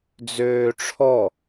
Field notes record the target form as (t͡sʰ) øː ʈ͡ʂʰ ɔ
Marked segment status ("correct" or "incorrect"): incorrect